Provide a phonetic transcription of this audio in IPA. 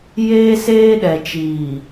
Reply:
jeː˦seː˦ɗɛ˨t͡ʃiː˨

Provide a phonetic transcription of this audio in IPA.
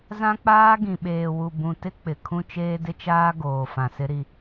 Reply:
zã˦k͡paː˦ ɡĩ˨ɓeː˨wu˨ bũ˨tɪ˦k͡pɪ˨ kʰũ˦t͡ʃeː˦dɪ˦t͡ʃaː˦ ɡoː˨fã˨sɪ˦ɾi˦

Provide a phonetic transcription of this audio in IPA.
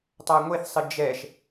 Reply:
tˤaŋʷeθsˤɨ d͡ʒɛʃ

